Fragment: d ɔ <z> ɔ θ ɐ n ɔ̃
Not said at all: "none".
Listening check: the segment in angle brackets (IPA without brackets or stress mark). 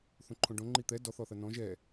θ